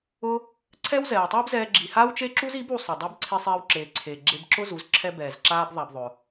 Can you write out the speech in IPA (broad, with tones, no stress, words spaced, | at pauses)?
ʊ˧ | ǀʰɛ˦wzɛː˨wtˤiː˦bzɛː˧ ɡ͡ǁi˨ haː˦wt͡ʃe˦ǁu˦z i˨˦b u˧sˤʊ˨ dˤɛ˧bǀʰi˧sˤeː˧w ǁeː˨ǀʰeː˨ ɡ͡ǁe˧bǁʊ˦zu˨˦z ǁʰɛ˧ bɛː˨zǁaː˧b ðˤa˦bðˤʊ˧